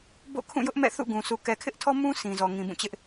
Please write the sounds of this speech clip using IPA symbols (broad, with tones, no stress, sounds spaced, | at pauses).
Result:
b o̰˦˨ kʰ ũ˦˨ j ʊ˦ ʔ m ɛ̰˦˨ θ ṵ˦˨ ɡ ũ˨ sʰ u˨ k ɛ˨ kʰ ɪ˦ ʔ tʰ ɔ˦ m ũ˦ s ĩ˨ z ɔ˨ ŋ ĩ˨ b ũ˦˨ t͡ɕ ɪ˦ ʔ